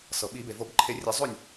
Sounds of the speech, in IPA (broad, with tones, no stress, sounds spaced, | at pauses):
s ɤ˩ ɓ i˨˩˦ b e˩ v o˨˩˦ b ǃʰ e˨˩˦ rʲ ɛ˨˩˦ zˤ o˥˩ nʲ